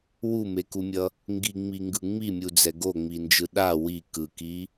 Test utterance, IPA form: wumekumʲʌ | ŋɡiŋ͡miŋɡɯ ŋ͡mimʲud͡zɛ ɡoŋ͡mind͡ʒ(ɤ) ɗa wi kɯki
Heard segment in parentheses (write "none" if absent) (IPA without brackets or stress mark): ɯ